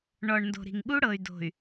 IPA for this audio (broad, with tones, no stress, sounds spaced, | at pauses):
ɳ ɔ˨ ɳ n d o̤˨ ɾ i̤˨ ŋ ɠ u˦ ɽ ɤ˨ y̯ d o̤˨ y̯